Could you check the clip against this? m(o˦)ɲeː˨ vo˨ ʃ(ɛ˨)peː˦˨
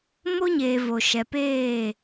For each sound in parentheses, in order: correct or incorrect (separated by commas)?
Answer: correct, correct